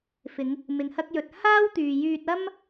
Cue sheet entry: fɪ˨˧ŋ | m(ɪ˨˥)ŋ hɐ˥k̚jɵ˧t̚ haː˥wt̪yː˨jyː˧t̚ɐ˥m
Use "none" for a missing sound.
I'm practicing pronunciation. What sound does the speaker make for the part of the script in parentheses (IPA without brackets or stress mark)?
ɪ˨